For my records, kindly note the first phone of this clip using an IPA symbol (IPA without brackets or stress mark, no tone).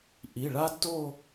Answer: ʔ